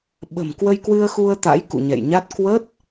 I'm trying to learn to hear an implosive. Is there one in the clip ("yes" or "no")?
yes